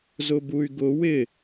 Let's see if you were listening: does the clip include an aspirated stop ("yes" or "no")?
no